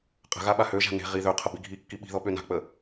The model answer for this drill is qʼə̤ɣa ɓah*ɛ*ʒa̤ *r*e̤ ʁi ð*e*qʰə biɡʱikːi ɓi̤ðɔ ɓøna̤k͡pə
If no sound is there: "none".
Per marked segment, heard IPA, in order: ø, n, ø

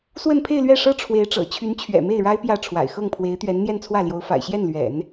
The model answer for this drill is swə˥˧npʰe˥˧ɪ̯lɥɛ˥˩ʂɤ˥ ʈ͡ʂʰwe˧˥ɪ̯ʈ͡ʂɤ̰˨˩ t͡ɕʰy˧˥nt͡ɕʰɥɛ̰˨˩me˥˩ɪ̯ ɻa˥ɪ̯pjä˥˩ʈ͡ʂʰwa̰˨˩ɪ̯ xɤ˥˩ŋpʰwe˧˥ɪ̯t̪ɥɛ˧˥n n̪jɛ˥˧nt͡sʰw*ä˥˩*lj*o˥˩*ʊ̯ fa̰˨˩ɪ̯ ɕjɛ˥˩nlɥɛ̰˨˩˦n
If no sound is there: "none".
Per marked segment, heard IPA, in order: ä˥˩, o˧˥

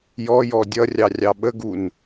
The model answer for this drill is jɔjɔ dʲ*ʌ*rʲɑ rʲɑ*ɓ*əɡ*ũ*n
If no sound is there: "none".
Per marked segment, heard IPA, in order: ʌ, ɓ, u

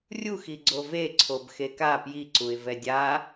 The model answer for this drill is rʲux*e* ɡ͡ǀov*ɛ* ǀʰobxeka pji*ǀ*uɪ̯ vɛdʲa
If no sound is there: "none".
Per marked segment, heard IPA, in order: i, e, ǀ

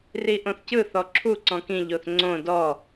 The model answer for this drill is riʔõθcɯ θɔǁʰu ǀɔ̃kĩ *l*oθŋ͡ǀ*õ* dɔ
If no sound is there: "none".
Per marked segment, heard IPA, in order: ʎ, õ

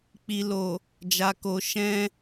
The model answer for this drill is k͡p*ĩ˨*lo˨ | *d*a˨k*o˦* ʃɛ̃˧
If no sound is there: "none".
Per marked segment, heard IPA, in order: i˨, d͡ʒ, o˨

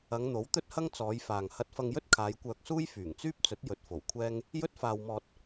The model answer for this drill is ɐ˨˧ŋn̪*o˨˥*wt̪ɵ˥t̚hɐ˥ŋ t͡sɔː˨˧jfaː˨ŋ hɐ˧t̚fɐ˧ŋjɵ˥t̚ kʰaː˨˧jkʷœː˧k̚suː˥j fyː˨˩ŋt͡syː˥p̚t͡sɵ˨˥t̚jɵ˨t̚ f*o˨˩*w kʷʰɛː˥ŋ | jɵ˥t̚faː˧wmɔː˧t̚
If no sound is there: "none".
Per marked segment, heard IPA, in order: o˨˥, o˨˩

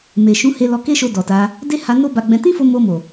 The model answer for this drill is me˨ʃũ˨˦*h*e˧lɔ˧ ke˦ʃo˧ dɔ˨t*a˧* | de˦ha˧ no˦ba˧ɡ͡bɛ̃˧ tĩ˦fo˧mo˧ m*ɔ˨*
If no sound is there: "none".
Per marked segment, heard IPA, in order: h, a˧, o˨

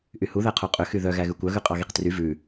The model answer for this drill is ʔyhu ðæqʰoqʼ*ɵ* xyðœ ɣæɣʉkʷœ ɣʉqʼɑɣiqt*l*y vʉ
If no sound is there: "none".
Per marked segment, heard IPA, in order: ø, r

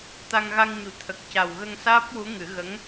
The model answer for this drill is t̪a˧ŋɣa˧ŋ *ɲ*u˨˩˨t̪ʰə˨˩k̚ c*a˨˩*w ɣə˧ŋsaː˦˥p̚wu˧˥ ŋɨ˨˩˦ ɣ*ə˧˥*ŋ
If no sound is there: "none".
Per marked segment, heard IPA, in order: ɲ, a˨˩, ə˧˥

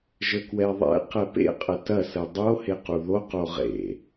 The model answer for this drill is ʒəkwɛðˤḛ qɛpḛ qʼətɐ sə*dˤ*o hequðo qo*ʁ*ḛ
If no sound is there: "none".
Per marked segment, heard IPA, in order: dˤ, ʁ

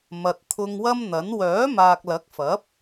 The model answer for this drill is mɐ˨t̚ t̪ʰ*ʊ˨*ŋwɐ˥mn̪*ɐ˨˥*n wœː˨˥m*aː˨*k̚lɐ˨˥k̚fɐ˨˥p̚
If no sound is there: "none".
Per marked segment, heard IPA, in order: ʊ˧, ɐ˨˥, aː˨

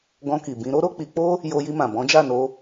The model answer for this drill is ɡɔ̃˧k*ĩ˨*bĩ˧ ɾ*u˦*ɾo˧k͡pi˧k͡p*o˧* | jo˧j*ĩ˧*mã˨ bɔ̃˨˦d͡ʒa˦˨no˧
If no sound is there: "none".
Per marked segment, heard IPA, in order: i˨, o˦, o˦, i˧

